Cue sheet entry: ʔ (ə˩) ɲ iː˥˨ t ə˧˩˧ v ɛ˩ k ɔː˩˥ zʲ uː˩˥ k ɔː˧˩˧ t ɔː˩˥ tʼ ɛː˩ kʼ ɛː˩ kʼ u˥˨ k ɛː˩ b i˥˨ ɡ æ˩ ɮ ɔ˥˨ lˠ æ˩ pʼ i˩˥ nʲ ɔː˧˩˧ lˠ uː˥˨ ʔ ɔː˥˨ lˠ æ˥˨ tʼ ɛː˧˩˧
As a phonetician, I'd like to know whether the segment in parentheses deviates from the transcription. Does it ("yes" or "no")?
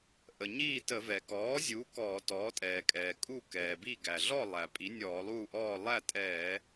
no